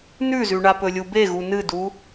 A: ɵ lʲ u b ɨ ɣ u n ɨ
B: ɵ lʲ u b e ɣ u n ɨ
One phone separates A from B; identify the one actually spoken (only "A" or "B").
B